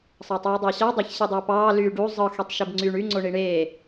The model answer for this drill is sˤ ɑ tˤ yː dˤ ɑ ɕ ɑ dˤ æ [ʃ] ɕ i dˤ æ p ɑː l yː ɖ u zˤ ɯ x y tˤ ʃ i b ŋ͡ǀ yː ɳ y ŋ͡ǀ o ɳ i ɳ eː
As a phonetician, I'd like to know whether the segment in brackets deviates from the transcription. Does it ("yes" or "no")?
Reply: yes